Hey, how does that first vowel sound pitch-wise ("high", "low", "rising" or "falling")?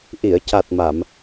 low